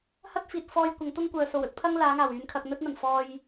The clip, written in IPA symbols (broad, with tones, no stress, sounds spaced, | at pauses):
h ɐ˥ t̚ f iː˨ t̚ f ɔː˧ j kʷ ɐ˨˧ ŋ t̪ ʊ˥ ŋ kʷ œː˨ s o˨˩ w ɵ˥ t̚ pʰ ɐ˥ ŋ l aː˨˧ ŋ aː˨˩ w yː˨ n kʰ ɐ˧ k̚ n̪ ɵ˥ t̚ n̪ ɐ˨˩ n f ɔː˧ j